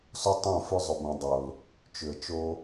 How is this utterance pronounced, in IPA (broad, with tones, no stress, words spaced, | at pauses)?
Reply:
so˦tˤõ˦˨fʏ˦ zˤʏ˧bõ˧dˤo˨l | t͡ʃʏ˨ə̯t͡ʃo˧